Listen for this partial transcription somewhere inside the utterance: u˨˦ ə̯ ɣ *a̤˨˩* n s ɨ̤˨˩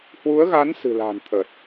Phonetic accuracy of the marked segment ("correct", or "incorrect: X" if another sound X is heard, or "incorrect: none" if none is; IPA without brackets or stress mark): incorrect: a˨˦